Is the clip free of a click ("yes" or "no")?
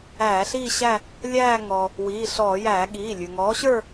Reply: yes